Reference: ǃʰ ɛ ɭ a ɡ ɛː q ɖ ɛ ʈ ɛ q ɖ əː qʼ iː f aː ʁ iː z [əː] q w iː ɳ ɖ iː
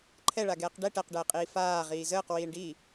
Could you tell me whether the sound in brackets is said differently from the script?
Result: no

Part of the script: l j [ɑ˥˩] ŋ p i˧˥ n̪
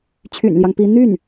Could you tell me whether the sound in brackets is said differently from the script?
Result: yes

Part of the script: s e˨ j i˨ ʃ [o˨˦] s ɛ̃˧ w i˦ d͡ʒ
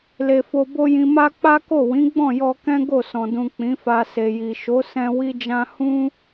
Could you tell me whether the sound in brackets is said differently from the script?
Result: no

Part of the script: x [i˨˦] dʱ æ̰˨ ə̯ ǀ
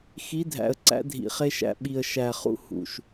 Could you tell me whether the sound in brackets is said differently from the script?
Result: no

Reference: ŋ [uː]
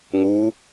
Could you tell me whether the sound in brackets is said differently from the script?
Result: yes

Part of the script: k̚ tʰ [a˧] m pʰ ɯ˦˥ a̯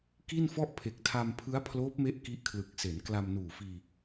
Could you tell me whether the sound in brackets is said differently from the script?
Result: no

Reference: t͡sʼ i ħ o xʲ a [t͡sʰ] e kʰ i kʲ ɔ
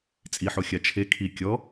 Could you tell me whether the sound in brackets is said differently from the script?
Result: yes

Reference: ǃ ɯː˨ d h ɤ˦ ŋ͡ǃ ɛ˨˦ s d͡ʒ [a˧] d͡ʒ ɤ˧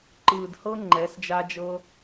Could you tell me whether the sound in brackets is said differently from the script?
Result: no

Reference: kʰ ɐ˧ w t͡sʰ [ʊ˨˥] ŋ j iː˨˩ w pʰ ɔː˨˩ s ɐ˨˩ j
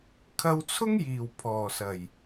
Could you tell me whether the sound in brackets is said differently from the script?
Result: yes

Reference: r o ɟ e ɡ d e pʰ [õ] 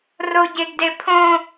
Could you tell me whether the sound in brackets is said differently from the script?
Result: no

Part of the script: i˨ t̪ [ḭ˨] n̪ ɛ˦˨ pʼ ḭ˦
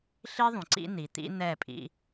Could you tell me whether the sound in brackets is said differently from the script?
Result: yes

